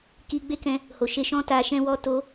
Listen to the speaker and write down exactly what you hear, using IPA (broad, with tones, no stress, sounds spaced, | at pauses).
k i˧ ɡ͡b e˦ k ɛ̃˧ | h o˨ ʃ e˧ ʃ ɔ̃˦ t a˧ ʃ ɛ̃˦ w ɔ˦ t o˦